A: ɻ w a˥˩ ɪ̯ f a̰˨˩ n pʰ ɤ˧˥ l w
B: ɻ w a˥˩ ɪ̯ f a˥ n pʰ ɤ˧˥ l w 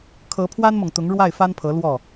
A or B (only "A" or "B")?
B